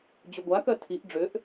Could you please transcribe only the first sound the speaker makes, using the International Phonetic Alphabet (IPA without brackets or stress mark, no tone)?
d͡ʑ